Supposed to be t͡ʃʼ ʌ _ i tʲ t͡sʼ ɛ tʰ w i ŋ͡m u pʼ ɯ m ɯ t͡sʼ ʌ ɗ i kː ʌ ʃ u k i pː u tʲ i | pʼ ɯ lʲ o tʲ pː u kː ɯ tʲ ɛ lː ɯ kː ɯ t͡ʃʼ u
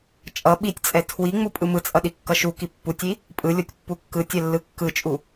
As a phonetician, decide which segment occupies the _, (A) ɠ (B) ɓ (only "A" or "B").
B